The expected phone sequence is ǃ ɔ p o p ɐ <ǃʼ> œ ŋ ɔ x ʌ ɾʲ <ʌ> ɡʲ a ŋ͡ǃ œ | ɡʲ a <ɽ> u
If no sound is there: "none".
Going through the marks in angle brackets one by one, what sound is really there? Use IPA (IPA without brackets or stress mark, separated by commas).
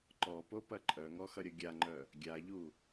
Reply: ǃʼ, ʌ, ʎ